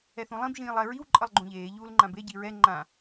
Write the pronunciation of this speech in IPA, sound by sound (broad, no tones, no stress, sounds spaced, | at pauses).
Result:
ɛ θ ũ lˠ ĩ b ʒ ĩː lˠ ɛ ɹ i w ǃʼ ʌ lˠ ɡ͡ǃ ũ ʎ eː ʎ uː l ŋ͡ǃ ã b e ɟ i ɹ ɛ ŋ͡ǃ ã